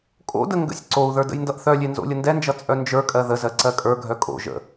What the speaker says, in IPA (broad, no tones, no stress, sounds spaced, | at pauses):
kʼ o̰ d ə ŋ ɡ ə̰ sʲ ǀ o u̯ ð ə˞ d ə̰ j n d ʌ ʔ θ œ lʲ e n z o̰ lʲ ə n d ɛ n d͡ʒ ʌ t͡sʼ œ n d͡ʒ ə˞ kʼ ɜ ð ə z ɜ ǀ ɜ kʼ ə˞ ɡʱ œ kʼ o̰ ʒ ə̰